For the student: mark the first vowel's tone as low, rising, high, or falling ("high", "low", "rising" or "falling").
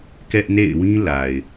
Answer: high